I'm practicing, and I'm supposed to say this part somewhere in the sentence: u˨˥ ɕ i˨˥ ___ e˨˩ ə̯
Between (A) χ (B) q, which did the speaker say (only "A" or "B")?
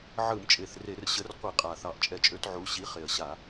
A